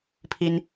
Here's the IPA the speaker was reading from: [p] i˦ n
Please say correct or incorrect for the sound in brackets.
incorrect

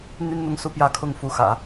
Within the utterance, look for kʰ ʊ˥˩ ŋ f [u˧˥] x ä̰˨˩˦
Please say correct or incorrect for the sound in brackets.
correct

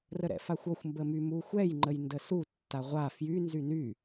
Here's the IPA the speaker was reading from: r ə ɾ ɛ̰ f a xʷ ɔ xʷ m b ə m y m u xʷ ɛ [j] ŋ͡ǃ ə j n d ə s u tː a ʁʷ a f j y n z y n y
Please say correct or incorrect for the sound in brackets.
correct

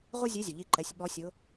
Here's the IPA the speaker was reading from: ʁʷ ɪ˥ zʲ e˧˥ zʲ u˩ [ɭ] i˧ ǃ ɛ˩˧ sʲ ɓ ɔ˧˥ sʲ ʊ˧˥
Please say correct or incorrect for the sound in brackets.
incorrect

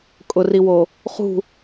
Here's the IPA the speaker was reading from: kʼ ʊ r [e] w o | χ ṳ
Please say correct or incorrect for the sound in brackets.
incorrect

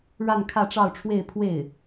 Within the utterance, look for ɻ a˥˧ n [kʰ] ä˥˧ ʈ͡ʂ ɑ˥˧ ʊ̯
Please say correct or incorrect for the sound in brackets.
correct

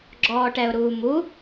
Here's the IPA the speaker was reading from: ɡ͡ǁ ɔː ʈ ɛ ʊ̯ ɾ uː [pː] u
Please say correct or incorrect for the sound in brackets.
incorrect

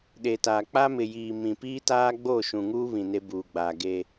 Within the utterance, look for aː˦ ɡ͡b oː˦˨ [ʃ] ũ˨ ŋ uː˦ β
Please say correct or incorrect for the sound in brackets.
correct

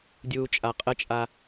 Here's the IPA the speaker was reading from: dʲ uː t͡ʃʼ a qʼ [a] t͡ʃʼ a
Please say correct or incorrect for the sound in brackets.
incorrect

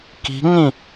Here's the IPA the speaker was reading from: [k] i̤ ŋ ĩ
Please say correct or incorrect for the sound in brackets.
correct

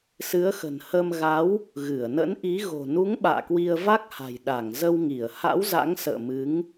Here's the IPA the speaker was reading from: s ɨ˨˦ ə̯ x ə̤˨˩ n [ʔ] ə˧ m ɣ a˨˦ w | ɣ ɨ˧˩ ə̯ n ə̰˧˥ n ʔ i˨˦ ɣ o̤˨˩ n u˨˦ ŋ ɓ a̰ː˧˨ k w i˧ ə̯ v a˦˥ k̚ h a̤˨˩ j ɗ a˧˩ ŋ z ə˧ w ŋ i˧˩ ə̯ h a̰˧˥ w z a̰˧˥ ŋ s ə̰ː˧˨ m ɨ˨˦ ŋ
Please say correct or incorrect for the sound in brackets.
incorrect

